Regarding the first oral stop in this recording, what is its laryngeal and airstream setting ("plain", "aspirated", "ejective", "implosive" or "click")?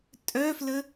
ejective